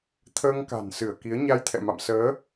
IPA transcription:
t̪ʰəː˧ŋ ka̤˨˩nsɨ˧˩ə̯ki˨˦ə̯ ɲa˧jt̪ʰɛ̰˧˨ ma̰˧˨msəː˨˦

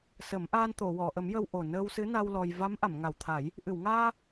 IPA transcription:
sə˨˩˦mʔaː˧n t̪o˨˩˨wɔ˨˩˨ʔə˨˩˦m jə˧wʔo˨˩ nəː˧wsɨ˧˥na˧w lɔ˧j va˧˥mʔa˨˩˨mŋa˨˩wt̪ʰa˨˩˦j | ʔɨ˨˩˨wŋaː˧

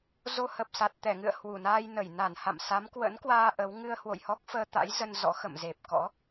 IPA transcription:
zo˧hə˨˩p̚sa˨˩t̚ t̪ɛ˧˩ŋɨ̰˧˨ə̯ hwu˧˩naː˧jnə˧˩j na˧˩nha̰˧˨msa˨˦m kwə̰˧˥nkwaː˧ ʔə˨˦w ŋɨ˧ə̯hwo̰˧˨jhɔ˦˥k̚ fəː˧t̪a̰˧˥jzə˧n zɔ̰˧˥ xə̰˧˨m ze˨˩p̚kɔ̰˧˥

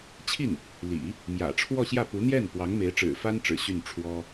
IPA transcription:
t͡ɕʰi˥˩n | lḭ˨˩˦ | mjä̰˨˩ ʈ͡ʂʰwɔ˥˧ɕjä˥˩ pu˧˥n̪jɛ˥˩npwɑ˧˥ŋ me˧˥ɪ̯ʈ͡ʂɻ̩˨˩fa˥n ʈ͡ʂɻ̩˨˩ɕy˥˩n ʈ͡ʂʰwɔ˥

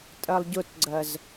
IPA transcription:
tʼɜlˠɟʊtɡ͡ǀɜz

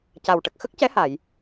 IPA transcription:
ca˨˩wʈə˨˩k̚ xə˦˥k̚cɛ˧˥ha˨˩˨j

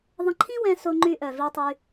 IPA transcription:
ðˤə̃˧ǃʰĩ˥wɛ̃˧ so˧ŋ͡ǃy˧ʔœ˩ vi˧tˤy˧

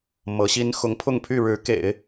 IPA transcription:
mɤ˧˥ɕi˥n xʊ˧˥ŋpʰʊ˥˧ŋ pʰy˥˩ɻɻ̩˧˥kḛ˨˩˦ɪ̯

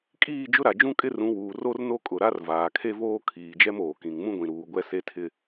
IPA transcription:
kʼiː˦˨d͡ʒʊ˦ɾa˨ d͡ʒũ˦kʼɪ˦rũ˨˦wuː˨ ro˦rno˦kʼʊ˨ɾa˦r vaː˨kʰe˦voː˦ kʰiː˨d͡ʒɛ˦moː˨kĩ˨ŋ mũ˦ɡʷĩ˨ɾuː˨ ɡʷɛ˦se˦tʰɪ˦

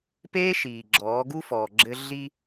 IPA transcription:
peː˦ ʃiː˨ ɡ͡ǁɔː˨˦ɡu˦ fɔː˨ɡ͡ǁɘ˦ ɮi˦

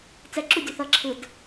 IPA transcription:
t͡sɛǁu dʲuθʌ ǁʰɯd

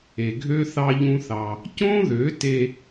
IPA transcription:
e˨ɡʱø˦ θɑ˦ʎũ˦θɑ˧ | cõ˦ðø˨˦te˧

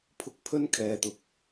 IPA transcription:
pʰʊ˧k̚pʰɵ˥nkʰɛː˨t̪ʊ˨k̚

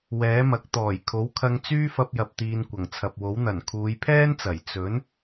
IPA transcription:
wɛː˨˥mɐ˨˥k̚ t̪ɔː˨˩jkʰo˨˥wkʰɐ˧ŋ t͡syː˥fɐ˧p̚jɐ˨p̚ t̪iː˨n kʷɐ˨˩ŋt͡sʰɐ˨p̚wo˨˥wn̪ɐ˨˩n kʰuː˨˧jpʰɛː˥nt͡sɐ˨˩j t͡sɵ˨˥n

